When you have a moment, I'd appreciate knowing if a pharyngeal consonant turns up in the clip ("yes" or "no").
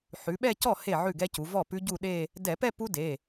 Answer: yes